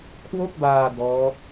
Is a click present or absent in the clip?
absent